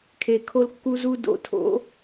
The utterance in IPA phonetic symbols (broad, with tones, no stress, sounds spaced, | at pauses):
kʰ e˨ kʰ o˦ l kː u˦ z u˦ d o̰˨ tʰ o̰˨˦